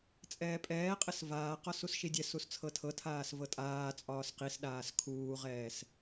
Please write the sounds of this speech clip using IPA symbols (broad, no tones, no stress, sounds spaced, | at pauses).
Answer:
t͡sʼ ɛː pʼ ɛː qʼ ɘ s v aː q ɒ s u s ʃ i dʲ ɛ s u s t͡sʰ ɤ tʰ ɤ tʰ aː s v ɤ tʼ aː t͡sʼ ɒː s q i s ɗ aː s kʰ uː ʁ ɛː s